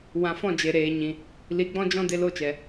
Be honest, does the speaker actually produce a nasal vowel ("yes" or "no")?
yes